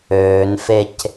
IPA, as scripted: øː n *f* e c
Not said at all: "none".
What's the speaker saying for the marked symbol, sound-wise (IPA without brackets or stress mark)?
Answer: f